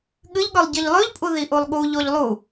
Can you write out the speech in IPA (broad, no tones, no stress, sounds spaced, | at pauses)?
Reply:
ɠ ɨ ʎ ɠ ɵ lˠ ɟ i ʎ lˠ ʉ ʎ pʼ u ð i ʔ u lˠ ɠ u ʎ o ʎ lˠ u